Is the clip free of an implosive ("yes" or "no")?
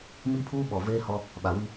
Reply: no